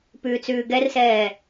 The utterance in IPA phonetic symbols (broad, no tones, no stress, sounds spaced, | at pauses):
p ʉː t͡s ʉː ɡ ɛ r s ɛː